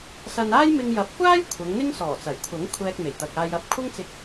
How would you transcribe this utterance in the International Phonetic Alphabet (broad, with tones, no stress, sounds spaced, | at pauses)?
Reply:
s ɐ˧ n aː˥ j m ɪ˧ ŋ j ɐ˨˥ p̚ kʷ aː˥ j kʷʰ ɐ˨˧ ŋ n̪ ɪ˥ ŋ s ɔː˨˩ t͡s ɐ˨˩ j kʷʰ ɐ˨˥ ŋ kʷʰ ɛː˧ k̚ m e˨˩ j t̪ ɐ˨ k̚ aː˧ j ɐ˧ p̚ kʷʰ ɐ˥ ŋ t͡s ɪ˧ k̚